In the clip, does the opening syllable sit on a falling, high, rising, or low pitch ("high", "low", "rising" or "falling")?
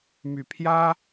low